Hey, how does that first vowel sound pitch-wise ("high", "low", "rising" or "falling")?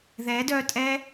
rising